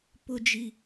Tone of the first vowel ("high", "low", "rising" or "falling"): high